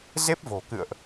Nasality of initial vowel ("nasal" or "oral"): oral